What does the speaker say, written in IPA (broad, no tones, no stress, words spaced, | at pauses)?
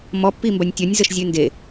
mɔ pːimbɐnʲtʲɔnʲ zəʃzʲʉnde